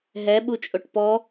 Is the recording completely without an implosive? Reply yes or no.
no